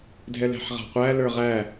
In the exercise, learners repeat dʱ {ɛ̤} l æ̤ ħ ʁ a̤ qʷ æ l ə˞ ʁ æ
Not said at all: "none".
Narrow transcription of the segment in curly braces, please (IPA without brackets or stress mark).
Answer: ɛ